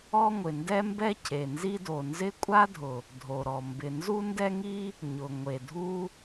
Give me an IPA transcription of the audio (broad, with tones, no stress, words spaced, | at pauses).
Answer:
ɔ˥ŋʷɪ˩ ndɛ˥mbɛ˥ cʰe˩nzi˥do˩ nzɪ˥ kʷʼa˥dʱʊ˩ | dʱo˩ɾɔ˩ mbɪ˩ nzu˥ndɛ˥ŋi˥ | ɲʊ˩ ŋʷe˩dʱu˥